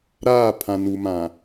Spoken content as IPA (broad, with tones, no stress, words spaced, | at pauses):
ɾaː˦˨pʰã˨nu˨mã˨